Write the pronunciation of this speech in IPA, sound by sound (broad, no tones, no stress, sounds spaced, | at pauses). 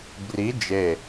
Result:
b r i d͡ʒ e